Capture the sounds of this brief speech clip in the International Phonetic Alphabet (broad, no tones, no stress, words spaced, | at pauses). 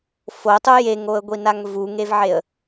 fotˤu jeŋoə̯ɡʷinaŋ vuŋevʕeə̯